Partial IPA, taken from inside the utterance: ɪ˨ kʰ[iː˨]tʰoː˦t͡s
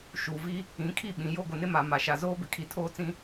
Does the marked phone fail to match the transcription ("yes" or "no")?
yes